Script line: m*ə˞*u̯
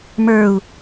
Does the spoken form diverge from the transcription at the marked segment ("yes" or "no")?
no